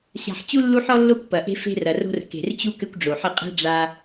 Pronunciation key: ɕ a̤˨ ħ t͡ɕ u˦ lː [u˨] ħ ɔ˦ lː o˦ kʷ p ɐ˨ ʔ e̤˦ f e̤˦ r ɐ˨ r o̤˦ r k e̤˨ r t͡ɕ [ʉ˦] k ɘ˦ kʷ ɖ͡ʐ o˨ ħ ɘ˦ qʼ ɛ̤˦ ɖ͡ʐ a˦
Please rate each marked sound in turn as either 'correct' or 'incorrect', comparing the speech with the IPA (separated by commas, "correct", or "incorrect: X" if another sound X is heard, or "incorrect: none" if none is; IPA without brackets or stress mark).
incorrect: u˦, incorrect: u˦